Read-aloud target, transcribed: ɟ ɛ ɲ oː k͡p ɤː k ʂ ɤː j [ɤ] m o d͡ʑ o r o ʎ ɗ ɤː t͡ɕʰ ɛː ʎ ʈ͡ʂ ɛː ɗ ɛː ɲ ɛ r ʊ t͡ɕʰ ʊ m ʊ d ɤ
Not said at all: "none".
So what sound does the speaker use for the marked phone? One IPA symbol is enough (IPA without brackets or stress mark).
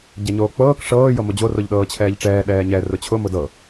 ɤ